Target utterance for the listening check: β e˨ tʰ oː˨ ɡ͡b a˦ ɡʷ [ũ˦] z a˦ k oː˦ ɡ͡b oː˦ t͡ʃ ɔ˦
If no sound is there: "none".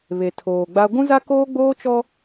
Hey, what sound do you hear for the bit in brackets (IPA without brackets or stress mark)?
ũ˦